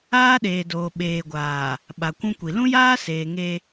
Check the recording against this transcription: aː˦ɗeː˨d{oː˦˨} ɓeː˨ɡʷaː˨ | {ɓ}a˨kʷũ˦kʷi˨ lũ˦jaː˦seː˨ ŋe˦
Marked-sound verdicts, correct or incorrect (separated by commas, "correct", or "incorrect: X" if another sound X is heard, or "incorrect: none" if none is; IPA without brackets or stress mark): incorrect: oː˨, correct